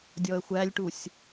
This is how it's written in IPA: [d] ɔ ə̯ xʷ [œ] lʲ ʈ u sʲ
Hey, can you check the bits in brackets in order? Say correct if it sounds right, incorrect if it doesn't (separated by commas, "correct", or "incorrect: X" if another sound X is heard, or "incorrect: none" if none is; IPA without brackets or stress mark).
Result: incorrect: dʲ, incorrect: æ